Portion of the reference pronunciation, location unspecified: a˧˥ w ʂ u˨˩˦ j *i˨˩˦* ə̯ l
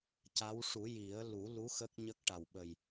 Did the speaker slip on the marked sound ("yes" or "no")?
no